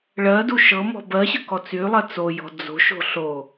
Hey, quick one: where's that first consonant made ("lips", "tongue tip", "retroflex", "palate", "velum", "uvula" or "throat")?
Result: retroflex